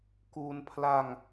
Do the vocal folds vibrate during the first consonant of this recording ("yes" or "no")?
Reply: no